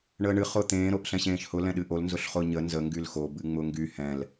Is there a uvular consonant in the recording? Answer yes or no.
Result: yes